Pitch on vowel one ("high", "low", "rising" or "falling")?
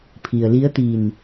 low